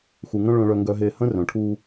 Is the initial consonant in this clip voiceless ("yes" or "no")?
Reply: yes